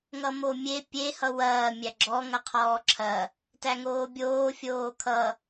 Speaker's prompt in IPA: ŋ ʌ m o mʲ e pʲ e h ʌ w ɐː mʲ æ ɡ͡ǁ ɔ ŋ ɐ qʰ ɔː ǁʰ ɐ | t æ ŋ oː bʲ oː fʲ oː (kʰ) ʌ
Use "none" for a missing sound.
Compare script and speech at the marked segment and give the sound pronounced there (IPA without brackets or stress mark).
kʰ